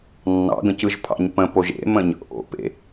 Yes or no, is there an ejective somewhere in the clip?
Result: no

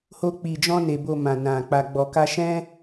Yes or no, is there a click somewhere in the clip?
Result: no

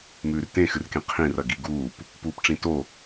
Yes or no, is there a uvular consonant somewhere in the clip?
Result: yes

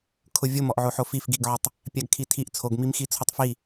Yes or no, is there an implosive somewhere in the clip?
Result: no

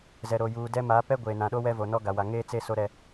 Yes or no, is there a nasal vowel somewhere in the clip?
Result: yes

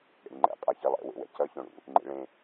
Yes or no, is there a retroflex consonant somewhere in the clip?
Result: yes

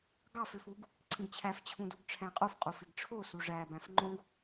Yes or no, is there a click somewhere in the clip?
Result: yes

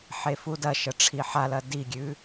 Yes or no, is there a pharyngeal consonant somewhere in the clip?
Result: yes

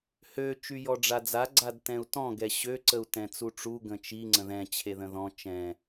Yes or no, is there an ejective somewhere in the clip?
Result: no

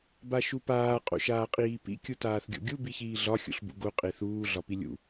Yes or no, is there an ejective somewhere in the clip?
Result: yes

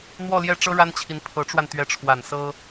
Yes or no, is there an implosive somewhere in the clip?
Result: no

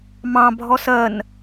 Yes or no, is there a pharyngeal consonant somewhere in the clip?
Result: no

